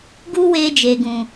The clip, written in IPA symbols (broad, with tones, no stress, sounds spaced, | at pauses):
ɡ u˧ w eː˧ d͡ʒ eː˨ ɡ ũ˨